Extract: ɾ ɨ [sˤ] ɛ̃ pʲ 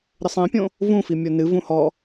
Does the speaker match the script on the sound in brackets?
yes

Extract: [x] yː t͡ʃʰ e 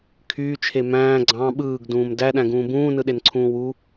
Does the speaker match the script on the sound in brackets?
no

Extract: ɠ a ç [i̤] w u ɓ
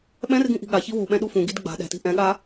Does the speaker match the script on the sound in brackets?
no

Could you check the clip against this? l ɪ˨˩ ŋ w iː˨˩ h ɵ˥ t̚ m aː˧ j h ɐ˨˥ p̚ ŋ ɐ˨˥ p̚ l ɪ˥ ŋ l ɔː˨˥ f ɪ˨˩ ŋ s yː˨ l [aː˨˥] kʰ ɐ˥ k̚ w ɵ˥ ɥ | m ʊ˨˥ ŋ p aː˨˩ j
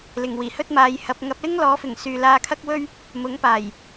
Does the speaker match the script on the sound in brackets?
no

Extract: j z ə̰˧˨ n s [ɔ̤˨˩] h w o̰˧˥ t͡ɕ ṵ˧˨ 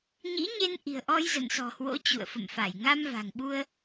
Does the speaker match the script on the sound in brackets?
yes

